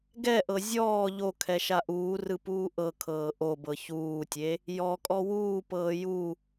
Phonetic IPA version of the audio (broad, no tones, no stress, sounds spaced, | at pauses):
ɡ ɛ ʔ ɤ zʲ ɔː ʎ o kʰ ɛ ʃ a ʔ uː r ɯ p uː ʔ ɤ kʰ ɤː ʔ o b ɤ ç uː tʲ e | j ɔ kʼ ɔ w uː p ɤː j u